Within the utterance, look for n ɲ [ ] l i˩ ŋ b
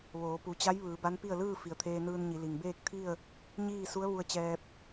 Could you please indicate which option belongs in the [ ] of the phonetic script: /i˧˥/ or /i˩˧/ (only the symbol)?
i˩˧